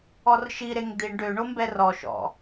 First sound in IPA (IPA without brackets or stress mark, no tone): ɔ